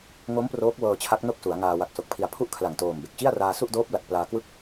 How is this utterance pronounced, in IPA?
ŋ o˦˥ m p r oː˦˥ k̚ w ɤː˧ t͡ɕʰ a˦˥ k̚ n o˥˩ k̚ s u˩˦ a̯ ŋ aː˧ w a˨˩ k̚ s o˨˩ k̚ pʰ i˨˩ a̯ pʰ u˥˩ ʔ kʰ l a˨˩ ŋ t oː˨˩ m b e˨˩ k̚ t͡ɕ i˥˩ a̯ r aː˧ s u˥˩ ʔ d oː˦˥ p̚ l a˨˩ t̚ p l aː˧ k w ɯ˥˩ k̚

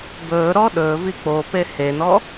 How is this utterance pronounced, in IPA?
b ɵː ɾ ɔ ɗ ɵː v i k͡p o p e h e n ɔ

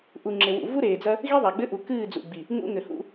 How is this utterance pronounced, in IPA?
ʔ u˨ ŋ͡ǁ e˨ w ṵ˨ v u˦ ɾ eː˨ d͡z ɐ˦ | ɣ i˦ ðˤ a˨ ɡ͡b ɘ˦ ʔ u˨ k ɨː˦˨ d͡z ṵ˨ ɡ͡b i˨ | ŋ ṵ˦ ŋ ɘ˨ h ṵ˦

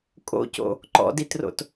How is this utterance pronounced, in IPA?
kʼ o̰ c o̰ | ǃ ɔ̰ d i t r o̰ t

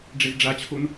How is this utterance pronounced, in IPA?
ɖ͡ʐ ɛ z ɖ͡ʐ a t͡ɕʰ o n

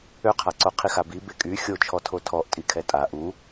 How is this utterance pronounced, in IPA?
ø qʰ a ǀ o qʰ i x a b i b e kʼ y xʲ o t͡ʃʰ ɔ tʰ o tʰ ɔ ʔ tʼ i kʰ ɛ tʼ a ʔ u

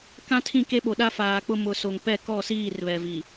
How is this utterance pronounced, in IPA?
k ã˦ tʰ ĩ˦˨ k e˦ ɓ o˨ ɗ a˦ f aː˨ k͡p ʊ˦ m ʊ˨ s o˨ ŋ p ɛ˦˨ k ɔ˦˨ s iː˦˨ r β ɛ˨ v i˨

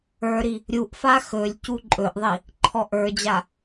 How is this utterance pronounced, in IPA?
ə˞ ɾ i | ɾʲ u ʔ f a x ɵ lʲ c u ǃʼ ɵ ʔ ðˤ i | ǃʰ ɔ ʔ ə˞ d͡ʑ a

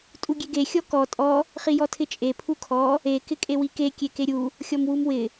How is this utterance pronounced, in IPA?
tʼ u ɡʲ e ɡ e xʲ ɔ k ɔ tʼ ɔ | χ i j ɔ tʰ ɪ t͡ʃʼ e pʰ u kʰ ɔ | e k ɪ kʼ e w i k e kʲ e k e ɾʲ u | xʲ ɔ m w u m w ɪ

